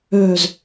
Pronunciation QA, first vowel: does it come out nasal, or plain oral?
oral